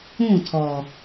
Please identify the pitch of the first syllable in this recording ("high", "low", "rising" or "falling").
falling